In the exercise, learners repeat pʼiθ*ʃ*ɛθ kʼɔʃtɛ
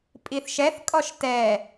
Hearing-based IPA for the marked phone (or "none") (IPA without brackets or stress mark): ʃ